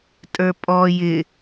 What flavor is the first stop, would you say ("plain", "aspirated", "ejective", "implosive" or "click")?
ejective